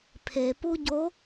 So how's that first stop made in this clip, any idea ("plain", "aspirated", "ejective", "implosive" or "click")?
aspirated